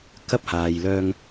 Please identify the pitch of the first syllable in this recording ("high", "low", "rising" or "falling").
high